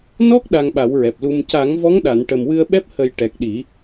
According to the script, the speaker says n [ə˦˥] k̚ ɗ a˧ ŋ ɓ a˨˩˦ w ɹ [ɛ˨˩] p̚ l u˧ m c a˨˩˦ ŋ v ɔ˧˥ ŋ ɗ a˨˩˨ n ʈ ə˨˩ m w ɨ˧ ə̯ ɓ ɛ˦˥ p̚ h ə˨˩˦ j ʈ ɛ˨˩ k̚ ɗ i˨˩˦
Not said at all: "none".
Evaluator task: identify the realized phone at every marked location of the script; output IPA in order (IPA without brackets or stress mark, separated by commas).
ɔ˦˥, ɛ˨˩